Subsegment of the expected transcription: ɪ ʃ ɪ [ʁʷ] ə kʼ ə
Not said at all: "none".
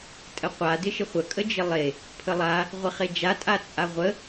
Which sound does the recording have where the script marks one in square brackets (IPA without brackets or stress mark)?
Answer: χʷ